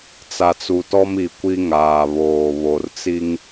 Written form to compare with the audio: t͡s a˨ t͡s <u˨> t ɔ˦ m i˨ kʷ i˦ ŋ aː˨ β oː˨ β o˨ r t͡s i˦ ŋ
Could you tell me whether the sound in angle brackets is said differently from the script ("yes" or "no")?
no